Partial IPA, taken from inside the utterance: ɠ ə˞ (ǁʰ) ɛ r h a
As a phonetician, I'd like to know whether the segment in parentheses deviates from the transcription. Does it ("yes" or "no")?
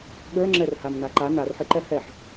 yes